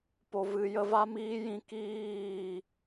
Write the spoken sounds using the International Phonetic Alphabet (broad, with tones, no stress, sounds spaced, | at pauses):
p o˨ v ɨ˨ j ə˧ v a˦ m iː˦ j ĩ˧ k iː˦˨